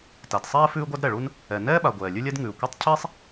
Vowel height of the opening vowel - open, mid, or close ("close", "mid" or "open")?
open